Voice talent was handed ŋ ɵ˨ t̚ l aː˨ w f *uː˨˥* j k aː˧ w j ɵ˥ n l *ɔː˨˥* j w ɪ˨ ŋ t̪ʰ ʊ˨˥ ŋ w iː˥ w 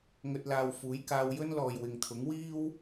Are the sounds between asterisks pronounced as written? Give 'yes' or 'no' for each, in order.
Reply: yes, no

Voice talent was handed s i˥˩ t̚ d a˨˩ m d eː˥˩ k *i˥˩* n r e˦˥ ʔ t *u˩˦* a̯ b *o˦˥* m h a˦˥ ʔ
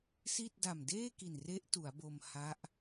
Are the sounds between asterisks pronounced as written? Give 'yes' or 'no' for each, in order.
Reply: no, yes, no

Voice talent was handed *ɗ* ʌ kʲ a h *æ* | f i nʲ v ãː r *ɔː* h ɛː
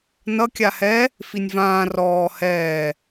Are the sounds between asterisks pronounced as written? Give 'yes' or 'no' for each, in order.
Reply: no, no, yes

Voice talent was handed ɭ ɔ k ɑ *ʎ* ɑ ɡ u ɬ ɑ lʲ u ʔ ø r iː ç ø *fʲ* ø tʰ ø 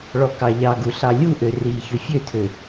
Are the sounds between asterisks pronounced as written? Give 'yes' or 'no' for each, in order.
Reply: yes, yes

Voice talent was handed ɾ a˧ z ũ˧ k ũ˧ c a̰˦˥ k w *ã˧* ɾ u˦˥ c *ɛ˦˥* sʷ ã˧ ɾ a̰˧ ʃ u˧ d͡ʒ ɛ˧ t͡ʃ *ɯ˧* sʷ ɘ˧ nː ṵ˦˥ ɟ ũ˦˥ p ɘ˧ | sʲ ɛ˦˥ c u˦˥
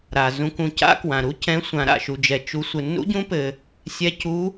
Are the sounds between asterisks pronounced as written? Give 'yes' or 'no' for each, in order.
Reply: yes, no, no

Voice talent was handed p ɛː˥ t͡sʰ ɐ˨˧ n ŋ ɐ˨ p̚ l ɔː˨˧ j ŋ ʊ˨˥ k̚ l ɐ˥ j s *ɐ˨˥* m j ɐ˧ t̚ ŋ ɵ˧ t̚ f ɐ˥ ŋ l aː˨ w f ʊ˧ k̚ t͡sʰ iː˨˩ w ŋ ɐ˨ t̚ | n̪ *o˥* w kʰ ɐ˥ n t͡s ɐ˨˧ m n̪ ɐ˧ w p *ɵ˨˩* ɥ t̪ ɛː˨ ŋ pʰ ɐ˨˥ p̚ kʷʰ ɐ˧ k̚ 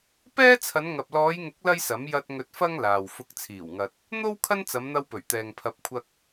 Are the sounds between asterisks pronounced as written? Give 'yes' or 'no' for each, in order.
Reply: yes, yes, yes

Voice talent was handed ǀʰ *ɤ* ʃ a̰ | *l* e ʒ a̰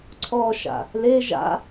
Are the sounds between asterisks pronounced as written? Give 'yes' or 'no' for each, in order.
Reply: no, yes

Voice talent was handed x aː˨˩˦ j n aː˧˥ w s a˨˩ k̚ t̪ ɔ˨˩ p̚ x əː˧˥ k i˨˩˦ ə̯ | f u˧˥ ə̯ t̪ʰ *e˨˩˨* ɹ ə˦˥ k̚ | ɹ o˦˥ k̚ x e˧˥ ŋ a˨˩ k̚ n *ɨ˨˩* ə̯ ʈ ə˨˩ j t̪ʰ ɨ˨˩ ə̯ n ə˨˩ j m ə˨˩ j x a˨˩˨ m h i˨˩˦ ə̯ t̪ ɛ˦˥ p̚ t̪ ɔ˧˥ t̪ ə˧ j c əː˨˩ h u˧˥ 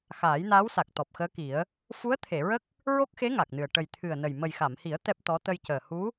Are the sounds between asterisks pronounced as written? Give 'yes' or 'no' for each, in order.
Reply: yes, yes

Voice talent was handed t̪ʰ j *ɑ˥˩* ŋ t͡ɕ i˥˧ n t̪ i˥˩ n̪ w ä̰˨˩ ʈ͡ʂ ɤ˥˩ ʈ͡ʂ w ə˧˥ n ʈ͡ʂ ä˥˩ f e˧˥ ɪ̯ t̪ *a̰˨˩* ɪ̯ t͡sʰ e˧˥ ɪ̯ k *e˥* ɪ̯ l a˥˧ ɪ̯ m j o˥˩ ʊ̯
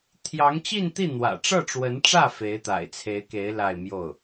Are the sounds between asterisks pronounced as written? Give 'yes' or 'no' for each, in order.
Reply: no, yes, no

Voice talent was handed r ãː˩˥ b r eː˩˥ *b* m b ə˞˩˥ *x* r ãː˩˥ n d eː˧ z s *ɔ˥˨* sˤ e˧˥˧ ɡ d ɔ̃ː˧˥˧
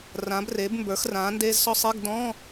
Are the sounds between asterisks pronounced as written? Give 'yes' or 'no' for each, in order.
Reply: yes, yes, no

